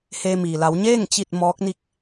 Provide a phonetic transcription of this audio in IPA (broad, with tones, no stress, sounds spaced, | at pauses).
h eː˧ m iː˩ l a˩˧ w ɲ eː˥˨ ŋ t͡ɕ i˥˨ t̚ m ɔː˧˥ k̚ n i˥˨ k̚